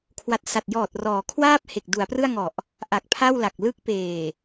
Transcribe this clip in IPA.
kʰ w a˨˩ t̚ s a˨˩ t̚ j ɔː˨˩ t̚ r ɔː˩˦ kʰ w aː˥˩ p̚ h e˨˩ k̚ d u˩˦ a̯ p r ɯ˥˩ a̯ ŋ ɔ˨˩ ʔ | ʔ a˨˩ k̚ pʰ a˥˩ w l a˨˩ k̚ l ɯ˦˥ k̚ p eː˨˩

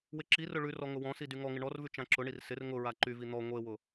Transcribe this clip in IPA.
w ɪ ǁ i r ʊ ɭ ʉ r ɔ ŋ ʊ w ɔ̃ s i d y ŋ ɔ ŋ ɪ ɳ ɔ r v ʉ t͡ʃ ã ǁ ʊ ɳ i r s ɪ r ŋ ʊ ɹ a ǃ y v i n̪ ɔ ŋʷ e w ʊ

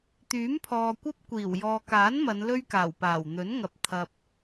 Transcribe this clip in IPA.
t̪ yː˨˥ m pʰ ɔː˨ kʷ ɐ˥ p̚ kʷ iː˨˩ w j ɔː˨ k aː˨˥ n m ɐ˨˧ n l ɵ˥ ɥ k aː˨˩ w p aː˨˩ w n̪ ɵ˨˥ n ŋ ɐ˨ p̚ t̪ʰ ɐ˨ p̚

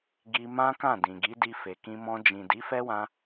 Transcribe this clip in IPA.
ɡ i˧ m ã˦ k ã˦˨ d ĩ˨ ɡ i˨˦ d i˧ f e˨ k ĩ˧ m ɔ̃˧ d͡ʒ ĩ˨ d i˨˦ f ɛ˦ w ã˧

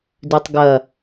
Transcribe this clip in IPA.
d ʉ tˤ ɡ ɐ

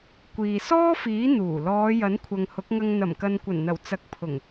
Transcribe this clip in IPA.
kʷ iː˨ s ɔː˥ f iː˨˥ n̪ uː˨˩ l ɔː˨˧ j ɐ˨˥ n kʷʰ ɐ˨ ŋ h ʊ˨˥ k̚ ŋ ɐ˧ ŋ n̪ ɐ˨˩ m k ɐ˨ n kʷ ɐ˨˩ n n̪ ɐ˨˩ w t͡s ɐ˨˥ k̚ pʰ ʊ˨˩ ŋ

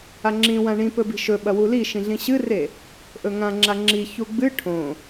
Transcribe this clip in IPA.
a ŋ͡ǁ ĩ w ã ɳ ĩ p ɵ b i̤ ʃ ɵ ɓ ɐ w u l i ʃ ĩ ɮ ĩ ɕ ɨ r e | ʔ ɵ ŋ ã ŋ͡ǁ a ŋ͡ǁ i ç u ɡ͡b ɨ ʈʰ õ

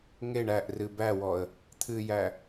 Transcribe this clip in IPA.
ŋ e ɳ æ ʔ r ɨ b æ w ɔ ə̯ | t̪ʰ ɨ j æ

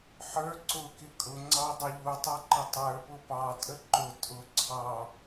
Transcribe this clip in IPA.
ħ ə˞ ǀ ʊ k ɪ kʼ ʊ ŋ͡ǀ ɑ dˤ ɪ ʎ u tˤ ɑ ǃ ə tˤ ə˞ p ʊ p ɑ tʼ ə ǃ ʊ tʼ ʊ ǀʰ ɑ

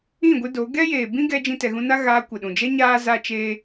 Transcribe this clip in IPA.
ĩ˦˨ ɡʷ ɨ˧ d o˨˦ ɡ ɛ˦ j eː˨ b ĩ˦ ɡ ɛ˧ d͡ʒ ĩ˦ t ɛ˧ ɣ ũ˦ n a˦ ɣ aː˧ kʷ ə˨ ɗ ũ˨ d͡ʒ ɛ˦ ɲ aː˦ z a˦ t͡ʃ eː˦

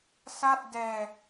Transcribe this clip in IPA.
s a˥˩ t̚ d ɛː˧

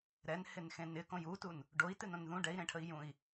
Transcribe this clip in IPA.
ɾ ɛ n h ɪ n x ẽ n ɪ k õ j u t u n | ɖ o i̯ t ɨ n õ n ð ũ ɖ ɛ i̯ ɾ ẽ ʈʰ ə i̯ j ũ i̯

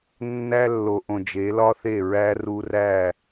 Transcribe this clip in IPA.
nː æ˦ lː o˨ ʔ õ˨ d͡ʒ e˨˦ l ɒ˦ θ e˦˨ ɹ æ˦ r u˦ r æ˦˨

